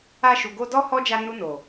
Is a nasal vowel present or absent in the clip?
present